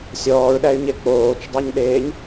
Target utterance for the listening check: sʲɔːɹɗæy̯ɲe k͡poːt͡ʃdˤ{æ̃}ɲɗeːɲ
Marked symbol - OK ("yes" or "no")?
no